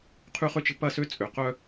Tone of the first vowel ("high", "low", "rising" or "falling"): high